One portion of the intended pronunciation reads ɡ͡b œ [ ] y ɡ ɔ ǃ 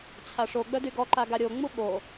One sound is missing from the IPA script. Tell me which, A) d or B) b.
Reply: A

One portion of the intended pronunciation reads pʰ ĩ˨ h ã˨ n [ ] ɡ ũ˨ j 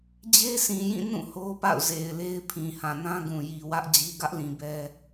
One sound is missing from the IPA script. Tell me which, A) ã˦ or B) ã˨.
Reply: A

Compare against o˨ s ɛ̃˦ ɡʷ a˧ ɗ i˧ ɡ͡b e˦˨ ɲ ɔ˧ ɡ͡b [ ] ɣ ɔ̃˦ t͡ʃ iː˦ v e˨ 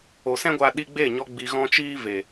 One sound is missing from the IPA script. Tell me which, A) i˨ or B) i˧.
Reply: B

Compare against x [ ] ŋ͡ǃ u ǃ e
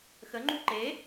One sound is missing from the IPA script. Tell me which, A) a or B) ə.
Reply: B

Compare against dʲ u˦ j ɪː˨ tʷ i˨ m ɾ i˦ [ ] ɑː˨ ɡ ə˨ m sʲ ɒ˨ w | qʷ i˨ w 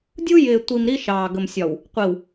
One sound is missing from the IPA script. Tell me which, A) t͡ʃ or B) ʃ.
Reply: B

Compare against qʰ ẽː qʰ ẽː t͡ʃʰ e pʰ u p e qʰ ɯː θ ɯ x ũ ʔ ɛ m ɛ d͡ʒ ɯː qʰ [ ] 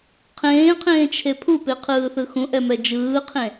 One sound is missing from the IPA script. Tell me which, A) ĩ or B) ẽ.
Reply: B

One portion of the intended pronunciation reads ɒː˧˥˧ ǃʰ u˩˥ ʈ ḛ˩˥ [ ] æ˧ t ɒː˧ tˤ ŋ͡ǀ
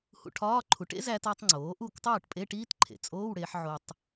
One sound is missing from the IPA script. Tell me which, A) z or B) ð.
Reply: A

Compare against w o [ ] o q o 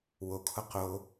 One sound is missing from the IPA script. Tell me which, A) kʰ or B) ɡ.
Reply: A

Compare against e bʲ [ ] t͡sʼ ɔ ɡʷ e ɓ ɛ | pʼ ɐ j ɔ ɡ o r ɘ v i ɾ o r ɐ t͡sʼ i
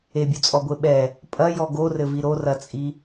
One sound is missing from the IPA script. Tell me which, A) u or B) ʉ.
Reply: A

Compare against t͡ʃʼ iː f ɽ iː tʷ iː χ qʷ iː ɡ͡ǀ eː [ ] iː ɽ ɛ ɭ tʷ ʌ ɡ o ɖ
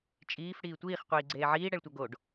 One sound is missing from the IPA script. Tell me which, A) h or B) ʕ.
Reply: B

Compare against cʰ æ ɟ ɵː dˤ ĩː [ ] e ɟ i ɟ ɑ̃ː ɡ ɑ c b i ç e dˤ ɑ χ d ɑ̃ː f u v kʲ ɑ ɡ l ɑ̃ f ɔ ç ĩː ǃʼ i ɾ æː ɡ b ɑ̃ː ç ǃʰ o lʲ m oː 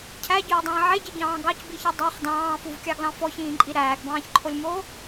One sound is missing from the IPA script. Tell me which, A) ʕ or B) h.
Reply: A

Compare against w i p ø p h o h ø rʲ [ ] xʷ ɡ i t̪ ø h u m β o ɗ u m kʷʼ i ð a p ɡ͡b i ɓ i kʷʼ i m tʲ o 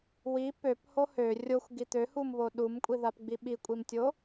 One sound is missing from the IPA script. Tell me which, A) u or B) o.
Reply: B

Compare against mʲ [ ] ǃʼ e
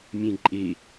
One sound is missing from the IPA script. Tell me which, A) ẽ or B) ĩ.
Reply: A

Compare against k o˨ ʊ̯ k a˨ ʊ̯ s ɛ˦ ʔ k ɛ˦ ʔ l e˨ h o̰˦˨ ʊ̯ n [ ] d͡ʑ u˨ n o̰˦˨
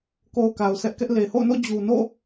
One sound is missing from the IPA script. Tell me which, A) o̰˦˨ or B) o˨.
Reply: A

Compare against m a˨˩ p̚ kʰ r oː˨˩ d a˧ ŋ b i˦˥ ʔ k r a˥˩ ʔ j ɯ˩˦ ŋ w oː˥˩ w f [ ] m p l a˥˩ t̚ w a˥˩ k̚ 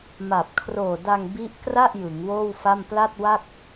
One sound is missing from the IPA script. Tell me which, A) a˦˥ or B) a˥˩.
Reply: B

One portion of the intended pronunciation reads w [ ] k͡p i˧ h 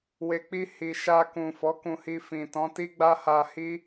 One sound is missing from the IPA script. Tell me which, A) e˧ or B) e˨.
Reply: B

